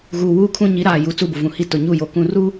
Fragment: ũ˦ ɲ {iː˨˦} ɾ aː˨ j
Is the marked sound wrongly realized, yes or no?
yes